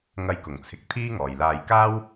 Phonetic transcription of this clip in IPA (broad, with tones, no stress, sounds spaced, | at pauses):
ŋ ɐ˧ j k ʊ˨˩ ŋ t͡sʰ ɪ˨ k̚ t̪ʰ iː˥ ŋ ɔː˨ j l aː˧ j k aː˥ w